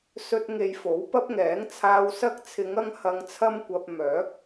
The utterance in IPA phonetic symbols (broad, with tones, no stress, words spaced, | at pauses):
sɵ˨t̚ ŋe˧jfo˨˥wpɐ˥p̚ŋɛː˨˥ŋ t͡sʰaː˨wsɐ˧k̚ t͡sʰɪ˨˧ŋ ɐ˧ŋhɐ˨ŋt͡sʰɐ˧mkʷɐ˨p̚ mœː˨˥k̚